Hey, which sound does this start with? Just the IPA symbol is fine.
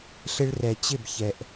ɬ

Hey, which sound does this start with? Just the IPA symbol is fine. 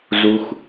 z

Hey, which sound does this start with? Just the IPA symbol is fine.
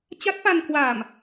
t͡ɕ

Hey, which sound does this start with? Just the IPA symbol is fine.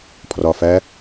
pʰ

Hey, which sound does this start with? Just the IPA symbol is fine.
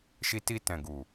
ʃ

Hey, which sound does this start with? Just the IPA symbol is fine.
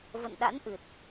v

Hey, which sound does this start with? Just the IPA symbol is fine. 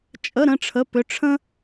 t͡ʃʼ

